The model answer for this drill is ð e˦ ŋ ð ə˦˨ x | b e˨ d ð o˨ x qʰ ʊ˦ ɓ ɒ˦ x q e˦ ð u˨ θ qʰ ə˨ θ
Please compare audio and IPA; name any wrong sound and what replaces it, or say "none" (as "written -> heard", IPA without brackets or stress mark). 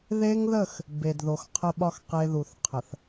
ʊ˦ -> ə˦